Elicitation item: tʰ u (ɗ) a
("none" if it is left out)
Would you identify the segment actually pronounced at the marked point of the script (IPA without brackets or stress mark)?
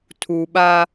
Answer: ɓ